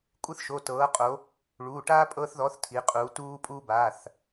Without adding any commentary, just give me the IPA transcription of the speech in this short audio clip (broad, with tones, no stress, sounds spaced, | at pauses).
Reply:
kʷʼ ɯ˦ θ ʃ o˩˧˩ t ɤː˩˧ qʼ o˩˧ | ɭ uː˩˧˩ ʈ aː˦ pʼ ɤː˦ θ ð ɔ˨˥ θ tʰ i˩˧ qʼ uː˩˧ t uː˦ pʼ uː˦ b aː˩˧˩ θ